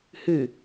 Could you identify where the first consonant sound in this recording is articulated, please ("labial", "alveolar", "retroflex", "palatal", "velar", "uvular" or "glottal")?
glottal